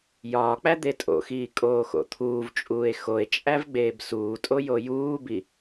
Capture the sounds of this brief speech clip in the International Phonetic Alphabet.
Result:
jɒːk͡pæ d̪etʼo̰xiː kʼoːxo̰t̪ʰuːvt͡ʃʼuːe̯ xoe̯t͡ʃʼæv ɡ͡beːbsuːtʼo jojuːbi

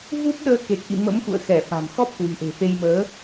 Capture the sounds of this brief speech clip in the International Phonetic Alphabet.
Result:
vu˦˥p̚ɗəː˧ ke˨˩k̚ʔḭ˧˨ mə̰˧˥mxṵ˧˨ə̯xɛ˧˩ fa̤˨˩mxɔ˦˥p̚kwi̤˨˩ʔe̤˨˩ fe˧jməː˨˦

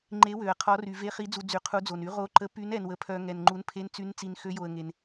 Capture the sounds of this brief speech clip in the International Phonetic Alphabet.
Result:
ŋ͡ǃe˨˦ wø˨ə̯qʰɔ˨˦ry˨ ve˨˦χi˨˦d͡zu˨ d͡zy˨qʰu˨˦d͡zo˨ny˨˦ ʁo˨˦ǃə˨˦ py˨˦nɛ˨nwə˨pʰœ˨ ŋɛ˨nŋ͡ǃu˨˦n pʰe˨˦nt͡sy˨˦nt͡si˨n xø˨˦jo˨ə̯ ŋe˨n

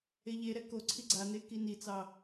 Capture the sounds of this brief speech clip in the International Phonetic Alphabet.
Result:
eʎeɾɛ ko ǀʰiɡ͡ǀane kinit͡sɑ

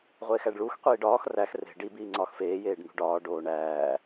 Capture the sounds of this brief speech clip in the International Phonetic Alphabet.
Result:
ʁʷeːxæɖɭux qʷiːɖɒːx ræx re̤ ɖi biːŋ͡ǀɒːxfeː jeːɖn̪ṳɖɒː ɖoːɳæː

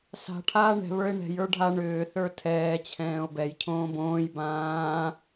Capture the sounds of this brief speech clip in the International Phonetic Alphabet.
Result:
sa̤ ʈʰaːɳɛ̤ βə˞e̯ɳɛ̤j ə˞ɖʱa ɳʏː θə˞tʰɛː t͡ɕʰɛ̃ːo̯bɛj cʰõːbõːj bãː

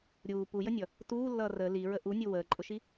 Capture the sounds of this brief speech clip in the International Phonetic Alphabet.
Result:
ɾʲuː pujənʲʌ | tuːlːʌː rə liɹə ʔunʲu wəːǃʼʊʃi

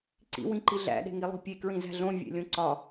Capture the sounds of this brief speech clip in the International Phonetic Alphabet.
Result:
ǀḭ wĩǃiɮæ̰ ɗe̤ŋilˠo̤pʲe kɹĩzæ̤ɮõ vʲḛlʲõǀɒ

